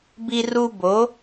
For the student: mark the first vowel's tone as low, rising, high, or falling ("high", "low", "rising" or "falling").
high